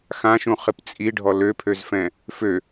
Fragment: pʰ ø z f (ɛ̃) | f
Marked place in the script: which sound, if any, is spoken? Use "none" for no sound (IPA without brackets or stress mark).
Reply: ɛ̃